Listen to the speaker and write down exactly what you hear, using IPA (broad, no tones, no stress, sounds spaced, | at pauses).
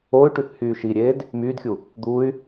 o y̯ ʈ y θ h yː ʃ i ɾʲ eː d | m yː d xʲ u | d̪ u y̯